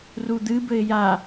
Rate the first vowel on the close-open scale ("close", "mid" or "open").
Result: close